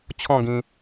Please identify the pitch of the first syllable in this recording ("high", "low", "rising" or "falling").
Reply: falling